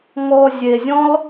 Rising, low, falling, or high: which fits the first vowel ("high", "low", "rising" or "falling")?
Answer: low